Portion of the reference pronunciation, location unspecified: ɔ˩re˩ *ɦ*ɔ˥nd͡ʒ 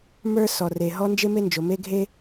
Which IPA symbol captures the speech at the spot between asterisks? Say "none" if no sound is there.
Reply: ɦ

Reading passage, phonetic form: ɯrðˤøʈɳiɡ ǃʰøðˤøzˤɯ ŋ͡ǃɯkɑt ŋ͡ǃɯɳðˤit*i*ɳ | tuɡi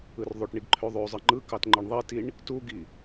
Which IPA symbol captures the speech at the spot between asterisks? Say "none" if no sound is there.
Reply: i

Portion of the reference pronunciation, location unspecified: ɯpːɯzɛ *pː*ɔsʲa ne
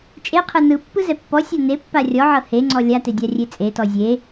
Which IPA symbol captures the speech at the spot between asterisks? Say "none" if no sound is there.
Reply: pː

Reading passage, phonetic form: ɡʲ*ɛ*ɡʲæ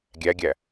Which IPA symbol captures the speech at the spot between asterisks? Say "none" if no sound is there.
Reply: æ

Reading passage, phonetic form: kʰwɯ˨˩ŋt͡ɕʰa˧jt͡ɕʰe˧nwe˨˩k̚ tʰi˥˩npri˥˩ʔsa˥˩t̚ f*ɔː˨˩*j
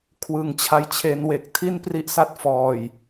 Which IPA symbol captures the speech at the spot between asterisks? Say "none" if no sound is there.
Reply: ɔː˨˩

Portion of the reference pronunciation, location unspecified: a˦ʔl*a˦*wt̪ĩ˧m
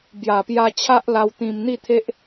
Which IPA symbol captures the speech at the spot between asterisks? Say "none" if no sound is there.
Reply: a˧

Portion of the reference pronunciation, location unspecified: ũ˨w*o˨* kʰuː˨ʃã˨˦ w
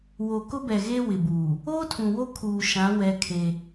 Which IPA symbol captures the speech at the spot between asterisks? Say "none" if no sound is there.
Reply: o˦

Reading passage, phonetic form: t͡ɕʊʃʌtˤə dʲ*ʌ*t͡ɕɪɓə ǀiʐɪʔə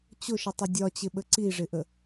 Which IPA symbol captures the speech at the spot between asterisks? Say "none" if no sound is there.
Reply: ɒ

